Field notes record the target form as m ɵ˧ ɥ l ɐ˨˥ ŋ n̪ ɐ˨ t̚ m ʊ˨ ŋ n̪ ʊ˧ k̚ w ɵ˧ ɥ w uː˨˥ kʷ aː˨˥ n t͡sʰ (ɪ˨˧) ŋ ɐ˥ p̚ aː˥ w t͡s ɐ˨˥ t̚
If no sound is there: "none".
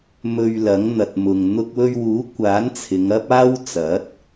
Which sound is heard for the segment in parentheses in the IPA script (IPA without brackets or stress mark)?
ɪ˨˧